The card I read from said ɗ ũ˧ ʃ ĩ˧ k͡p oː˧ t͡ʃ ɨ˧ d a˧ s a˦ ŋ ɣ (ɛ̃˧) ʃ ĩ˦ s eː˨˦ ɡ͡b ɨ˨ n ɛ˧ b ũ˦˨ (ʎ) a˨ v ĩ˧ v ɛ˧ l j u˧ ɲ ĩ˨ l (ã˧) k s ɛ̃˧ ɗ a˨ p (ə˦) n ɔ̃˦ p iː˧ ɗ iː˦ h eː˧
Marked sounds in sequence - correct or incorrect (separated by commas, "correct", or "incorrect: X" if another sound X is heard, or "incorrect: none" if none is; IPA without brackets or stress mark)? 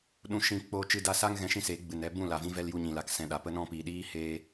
correct, incorrect: l, incorrect: a˧, correct